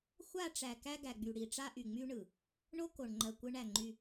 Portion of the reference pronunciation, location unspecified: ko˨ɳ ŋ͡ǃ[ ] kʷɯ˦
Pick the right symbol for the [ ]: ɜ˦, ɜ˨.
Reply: ɜ˨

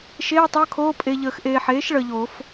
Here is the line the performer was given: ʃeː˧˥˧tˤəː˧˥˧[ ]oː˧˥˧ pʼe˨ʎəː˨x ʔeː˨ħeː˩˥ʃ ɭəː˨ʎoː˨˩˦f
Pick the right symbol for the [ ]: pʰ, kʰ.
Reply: kʰ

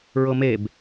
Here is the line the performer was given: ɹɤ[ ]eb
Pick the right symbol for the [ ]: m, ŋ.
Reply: m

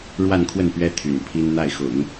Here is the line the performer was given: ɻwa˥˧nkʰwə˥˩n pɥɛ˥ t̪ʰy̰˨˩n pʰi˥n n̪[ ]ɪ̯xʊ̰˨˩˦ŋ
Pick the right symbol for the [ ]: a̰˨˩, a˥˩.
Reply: a˥˩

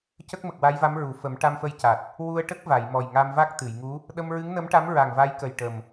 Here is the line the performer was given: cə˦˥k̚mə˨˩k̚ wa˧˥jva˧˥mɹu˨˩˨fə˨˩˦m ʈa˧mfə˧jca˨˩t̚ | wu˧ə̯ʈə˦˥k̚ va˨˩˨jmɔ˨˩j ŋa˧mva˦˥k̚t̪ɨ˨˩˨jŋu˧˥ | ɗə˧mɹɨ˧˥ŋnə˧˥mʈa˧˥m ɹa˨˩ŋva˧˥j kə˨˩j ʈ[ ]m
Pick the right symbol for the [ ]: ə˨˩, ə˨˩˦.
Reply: ə˨˩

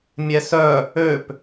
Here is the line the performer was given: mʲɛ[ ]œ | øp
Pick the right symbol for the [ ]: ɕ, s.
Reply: s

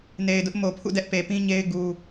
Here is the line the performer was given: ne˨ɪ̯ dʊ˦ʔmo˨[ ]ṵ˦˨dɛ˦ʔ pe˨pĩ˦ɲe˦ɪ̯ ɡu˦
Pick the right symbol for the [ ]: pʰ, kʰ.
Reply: pʰ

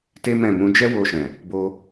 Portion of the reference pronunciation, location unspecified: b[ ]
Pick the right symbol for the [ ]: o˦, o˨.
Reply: o˦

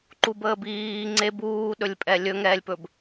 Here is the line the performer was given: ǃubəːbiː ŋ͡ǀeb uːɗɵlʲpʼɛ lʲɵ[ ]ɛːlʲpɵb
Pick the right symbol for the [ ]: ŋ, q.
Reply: ŋ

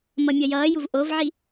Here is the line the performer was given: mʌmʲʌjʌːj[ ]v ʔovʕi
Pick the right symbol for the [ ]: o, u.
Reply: u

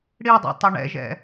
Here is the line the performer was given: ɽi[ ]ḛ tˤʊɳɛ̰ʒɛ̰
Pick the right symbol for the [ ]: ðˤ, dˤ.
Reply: dˤ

